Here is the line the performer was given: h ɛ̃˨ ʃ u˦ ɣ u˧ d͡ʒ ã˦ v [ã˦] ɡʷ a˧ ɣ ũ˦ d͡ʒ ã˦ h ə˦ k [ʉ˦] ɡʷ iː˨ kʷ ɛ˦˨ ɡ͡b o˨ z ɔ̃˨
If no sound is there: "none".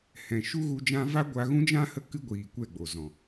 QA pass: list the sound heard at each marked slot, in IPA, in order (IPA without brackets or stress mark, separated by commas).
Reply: a˦, ɨ˦